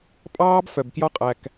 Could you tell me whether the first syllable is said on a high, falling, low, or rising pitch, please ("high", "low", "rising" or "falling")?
high